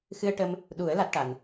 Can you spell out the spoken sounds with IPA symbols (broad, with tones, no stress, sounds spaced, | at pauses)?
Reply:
x ɨ˧ ə̯ ʈ ə˧ m | ɗ u˨˩˦ ə̯ l a˦˥ t̚ ʈ a˨˩ n